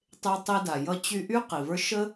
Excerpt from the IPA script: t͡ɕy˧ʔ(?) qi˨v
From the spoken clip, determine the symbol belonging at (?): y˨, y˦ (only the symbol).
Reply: y˦